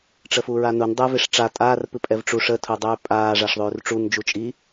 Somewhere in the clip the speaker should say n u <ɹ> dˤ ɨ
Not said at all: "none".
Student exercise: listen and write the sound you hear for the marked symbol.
n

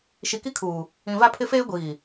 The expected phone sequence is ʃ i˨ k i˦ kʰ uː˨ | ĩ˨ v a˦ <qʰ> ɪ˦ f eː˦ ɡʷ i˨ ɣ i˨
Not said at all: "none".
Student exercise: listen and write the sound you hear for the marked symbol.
pʰ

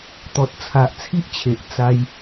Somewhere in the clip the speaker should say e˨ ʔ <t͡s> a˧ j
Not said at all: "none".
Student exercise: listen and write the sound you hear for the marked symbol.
t͡s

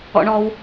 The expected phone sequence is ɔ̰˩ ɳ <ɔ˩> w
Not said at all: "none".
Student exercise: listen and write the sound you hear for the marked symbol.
ɔ˩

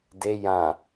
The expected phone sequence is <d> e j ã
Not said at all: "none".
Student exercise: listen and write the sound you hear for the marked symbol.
d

